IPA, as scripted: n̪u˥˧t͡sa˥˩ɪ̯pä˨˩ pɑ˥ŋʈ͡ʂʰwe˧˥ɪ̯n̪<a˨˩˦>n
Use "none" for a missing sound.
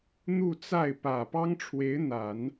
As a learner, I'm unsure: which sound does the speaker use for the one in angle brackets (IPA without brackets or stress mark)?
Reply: a˨˩˦